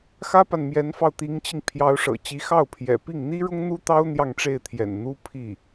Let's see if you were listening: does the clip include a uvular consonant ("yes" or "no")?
no